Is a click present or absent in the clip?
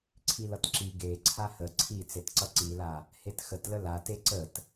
present